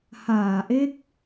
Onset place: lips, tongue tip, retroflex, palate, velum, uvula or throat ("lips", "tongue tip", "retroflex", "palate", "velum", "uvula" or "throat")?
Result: throat